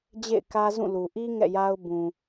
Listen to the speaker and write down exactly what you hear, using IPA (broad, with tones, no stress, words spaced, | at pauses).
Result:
d͡ʑḛ˦˨ɪ̯kä˦zũ˦˨lu˨ ʔi˦ ŋɛ̰˦˨ja˦ʊ̯ bũ˨